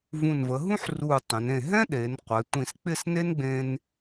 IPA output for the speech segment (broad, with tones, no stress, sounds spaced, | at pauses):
v ũ˧˩ n v ə˩˧ ɦ ũ˥ ħ r u˧˩ tˤ ə̃˩˧ n ẽ˧˩ ɦ ɛ̃˥ ɗ e˩˧ n qʷ ɛ˩˧ tʷ ĩ˧˩ s k͡p ɪ˥˧ s n e˥ n ɡ͡b ẽ˧ n